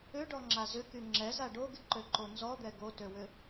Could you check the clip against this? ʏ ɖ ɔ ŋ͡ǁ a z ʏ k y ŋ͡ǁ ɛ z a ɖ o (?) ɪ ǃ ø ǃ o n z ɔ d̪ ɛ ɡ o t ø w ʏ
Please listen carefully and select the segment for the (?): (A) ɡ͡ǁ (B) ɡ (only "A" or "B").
B